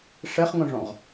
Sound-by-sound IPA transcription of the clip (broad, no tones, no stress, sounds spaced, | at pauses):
ʂ ɛ χ ŋ õ ʐ ɔ̃ ʁ